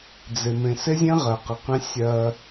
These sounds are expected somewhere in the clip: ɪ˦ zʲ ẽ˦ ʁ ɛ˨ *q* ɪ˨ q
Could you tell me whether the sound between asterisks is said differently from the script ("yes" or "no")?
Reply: no